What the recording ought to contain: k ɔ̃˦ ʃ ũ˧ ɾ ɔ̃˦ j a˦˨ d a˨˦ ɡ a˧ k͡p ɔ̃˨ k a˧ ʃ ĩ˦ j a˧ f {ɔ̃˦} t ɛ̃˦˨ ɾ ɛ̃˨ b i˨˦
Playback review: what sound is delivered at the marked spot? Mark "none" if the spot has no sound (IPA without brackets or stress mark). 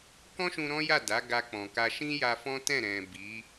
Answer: ɔ̃˦